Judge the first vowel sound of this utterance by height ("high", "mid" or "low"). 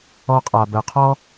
mid